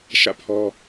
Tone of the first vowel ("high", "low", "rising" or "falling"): falling